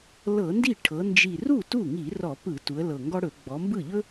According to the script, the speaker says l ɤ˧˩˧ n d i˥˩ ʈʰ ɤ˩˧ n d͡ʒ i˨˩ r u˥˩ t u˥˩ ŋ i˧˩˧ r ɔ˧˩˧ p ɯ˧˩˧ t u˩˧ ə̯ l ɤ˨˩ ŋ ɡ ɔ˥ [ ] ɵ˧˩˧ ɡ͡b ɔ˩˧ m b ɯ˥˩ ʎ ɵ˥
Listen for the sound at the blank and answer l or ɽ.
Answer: ɽ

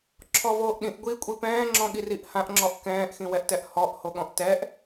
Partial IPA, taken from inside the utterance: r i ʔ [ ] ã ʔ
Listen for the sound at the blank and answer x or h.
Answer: h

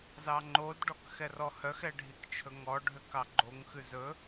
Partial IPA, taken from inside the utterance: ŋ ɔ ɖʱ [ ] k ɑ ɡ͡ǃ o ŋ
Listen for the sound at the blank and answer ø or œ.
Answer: ø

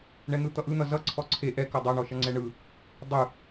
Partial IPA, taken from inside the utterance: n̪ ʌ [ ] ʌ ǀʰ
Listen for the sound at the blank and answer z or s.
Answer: z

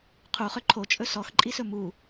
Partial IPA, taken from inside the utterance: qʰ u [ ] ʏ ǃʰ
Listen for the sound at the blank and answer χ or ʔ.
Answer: χ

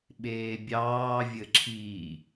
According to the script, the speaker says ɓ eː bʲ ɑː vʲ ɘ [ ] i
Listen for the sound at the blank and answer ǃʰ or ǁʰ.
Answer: ǁʰ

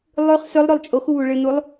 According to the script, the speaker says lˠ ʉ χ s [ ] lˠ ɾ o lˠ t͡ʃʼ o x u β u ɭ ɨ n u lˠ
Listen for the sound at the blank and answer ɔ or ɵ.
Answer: ɵ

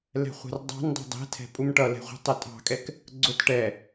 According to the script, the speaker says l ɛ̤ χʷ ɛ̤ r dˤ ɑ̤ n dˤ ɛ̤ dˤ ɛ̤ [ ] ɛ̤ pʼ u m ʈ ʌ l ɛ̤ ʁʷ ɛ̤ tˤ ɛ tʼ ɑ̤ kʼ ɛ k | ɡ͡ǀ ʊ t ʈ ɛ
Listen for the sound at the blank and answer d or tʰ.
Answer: tʰ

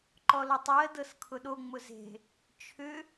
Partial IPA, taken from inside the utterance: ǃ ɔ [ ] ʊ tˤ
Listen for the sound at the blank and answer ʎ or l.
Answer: l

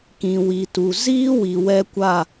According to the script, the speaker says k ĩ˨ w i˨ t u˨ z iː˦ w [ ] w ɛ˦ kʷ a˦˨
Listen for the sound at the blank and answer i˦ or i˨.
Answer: i˨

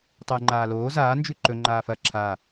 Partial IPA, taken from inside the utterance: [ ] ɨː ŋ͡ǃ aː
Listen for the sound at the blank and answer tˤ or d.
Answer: tˤ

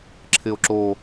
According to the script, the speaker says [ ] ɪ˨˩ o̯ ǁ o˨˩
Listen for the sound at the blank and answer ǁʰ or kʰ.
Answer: ǁʰ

